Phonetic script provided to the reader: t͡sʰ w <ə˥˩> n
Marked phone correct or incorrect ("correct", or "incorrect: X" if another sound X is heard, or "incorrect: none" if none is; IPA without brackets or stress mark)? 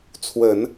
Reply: incorrect: ə˨˩˦